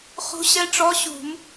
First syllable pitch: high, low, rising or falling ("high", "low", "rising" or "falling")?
rising